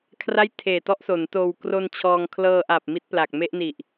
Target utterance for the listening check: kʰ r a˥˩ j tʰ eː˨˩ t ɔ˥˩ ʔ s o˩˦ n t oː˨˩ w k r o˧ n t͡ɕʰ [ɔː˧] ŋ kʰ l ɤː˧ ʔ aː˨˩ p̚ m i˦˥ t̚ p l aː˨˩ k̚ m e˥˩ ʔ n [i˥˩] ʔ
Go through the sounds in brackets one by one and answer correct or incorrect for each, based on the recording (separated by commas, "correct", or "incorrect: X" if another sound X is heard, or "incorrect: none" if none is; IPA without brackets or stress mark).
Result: correct, incorrect: i˨˩